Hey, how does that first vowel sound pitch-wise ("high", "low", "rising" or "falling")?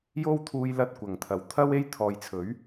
high